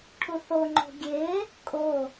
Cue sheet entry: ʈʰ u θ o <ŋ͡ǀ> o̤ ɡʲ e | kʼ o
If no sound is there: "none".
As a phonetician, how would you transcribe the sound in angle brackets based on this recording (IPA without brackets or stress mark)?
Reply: ŋ͡ǃ